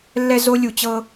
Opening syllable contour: low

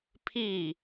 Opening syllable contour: falling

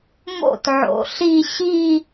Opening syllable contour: falling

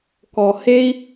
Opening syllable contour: low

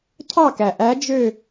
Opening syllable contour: falling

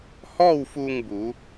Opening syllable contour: falling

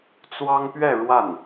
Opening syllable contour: high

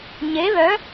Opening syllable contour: rising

